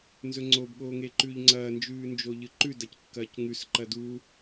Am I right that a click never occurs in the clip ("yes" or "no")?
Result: no